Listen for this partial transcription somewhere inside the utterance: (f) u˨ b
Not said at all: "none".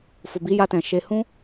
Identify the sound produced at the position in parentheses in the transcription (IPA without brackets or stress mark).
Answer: f